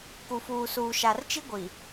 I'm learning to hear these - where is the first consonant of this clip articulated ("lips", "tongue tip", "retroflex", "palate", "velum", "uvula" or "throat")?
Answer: velum